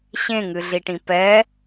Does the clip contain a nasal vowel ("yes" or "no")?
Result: yes